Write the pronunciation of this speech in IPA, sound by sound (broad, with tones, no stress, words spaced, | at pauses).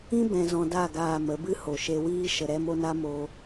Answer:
ĩ˦ bɛ̃˧zɔ̃˧da˦˨ ɡaː˨ mə˨˦bɨ˦ ho˨ʃe˧wiː˦ ʃə˧ɾɛ˦mo˦na˦ moː˧